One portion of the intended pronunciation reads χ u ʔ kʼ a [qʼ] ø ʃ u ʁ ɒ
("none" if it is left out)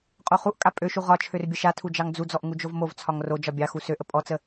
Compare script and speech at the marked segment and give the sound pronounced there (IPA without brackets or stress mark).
pʼ